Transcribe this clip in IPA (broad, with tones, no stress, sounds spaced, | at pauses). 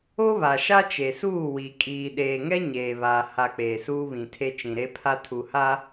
o˦ β a˨ ʃ a˦ t͡ʃ e˨ s uː˦˨ w i˨ kʼ iː˨ ɗ eː˨ ŋ ɛ˦ ɲ eː˨ β aː˨ h a˨ k͡p eː˨ s uː˦ β ĩ˨ tʰ e˦ t͡ʃ ĩ˨ ɾ e˦ pʰ a˦ tʰ u˨ h a˦